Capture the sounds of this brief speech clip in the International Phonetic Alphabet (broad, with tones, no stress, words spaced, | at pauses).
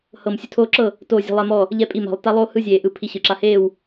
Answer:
hɤ˥˨m sʲu˦tʰoː˦ ǁɤ˥˨ | toː˥˨zʲe̤˦ lˠɛ˦mɔ˥˨ | ʎɛ˥˨pʼi˥˨ma̤˧˩lˠ ta˦lˠoː˦hɯ˦ zʲeː˧˩ʔɯ˧˩ pʰi˦ɕɯ˧˩ǁa˦ heː˥˨w